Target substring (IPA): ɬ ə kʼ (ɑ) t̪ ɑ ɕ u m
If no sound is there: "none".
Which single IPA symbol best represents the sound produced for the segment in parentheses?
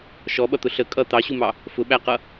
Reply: ʌ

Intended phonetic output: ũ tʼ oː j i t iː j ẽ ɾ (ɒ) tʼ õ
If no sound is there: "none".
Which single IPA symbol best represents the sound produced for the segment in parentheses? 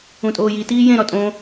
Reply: ɒ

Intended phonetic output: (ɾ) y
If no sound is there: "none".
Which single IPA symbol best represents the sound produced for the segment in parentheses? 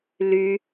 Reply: l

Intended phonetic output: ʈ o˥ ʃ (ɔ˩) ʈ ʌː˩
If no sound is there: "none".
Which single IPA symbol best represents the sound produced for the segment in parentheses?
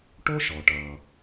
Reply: ɔ˩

